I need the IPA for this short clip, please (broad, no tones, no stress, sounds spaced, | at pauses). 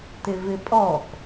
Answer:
t ɪ v ɪ pʼ ɔ k